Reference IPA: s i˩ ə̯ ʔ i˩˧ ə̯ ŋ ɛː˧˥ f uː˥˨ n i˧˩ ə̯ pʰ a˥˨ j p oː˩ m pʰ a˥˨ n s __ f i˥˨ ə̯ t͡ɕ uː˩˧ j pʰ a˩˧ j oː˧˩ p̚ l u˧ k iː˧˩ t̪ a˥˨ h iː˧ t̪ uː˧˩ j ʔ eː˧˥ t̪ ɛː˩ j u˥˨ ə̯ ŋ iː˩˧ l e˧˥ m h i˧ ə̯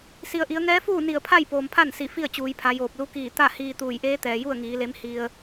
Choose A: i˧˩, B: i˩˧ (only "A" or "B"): A